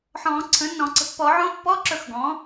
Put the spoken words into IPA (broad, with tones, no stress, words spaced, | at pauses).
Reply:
ħɔ̃ː˨˩˦ǀʰə̃˩˥nːɔ̃˨˩˦ ǀə̤˩˥pːɔ˨˩˦ʕõ˧˥˧ pːɔ˧˥˧ ǁɵ˦˨xɡɔ̃ː˩˥